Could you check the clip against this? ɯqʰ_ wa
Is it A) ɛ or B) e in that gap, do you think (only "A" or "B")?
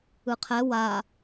A